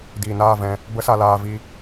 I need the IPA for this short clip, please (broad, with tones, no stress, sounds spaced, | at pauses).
d iː˨ n aː˦˨ v ɛ̃˧ | b ə˦ s a˧ l aː˧ v i˧